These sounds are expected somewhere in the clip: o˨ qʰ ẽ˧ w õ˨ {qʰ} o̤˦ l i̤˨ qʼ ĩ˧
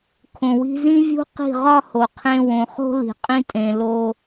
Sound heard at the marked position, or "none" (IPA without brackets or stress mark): χ